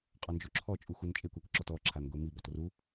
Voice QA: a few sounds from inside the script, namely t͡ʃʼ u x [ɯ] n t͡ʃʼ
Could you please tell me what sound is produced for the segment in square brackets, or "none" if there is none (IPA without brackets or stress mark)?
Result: u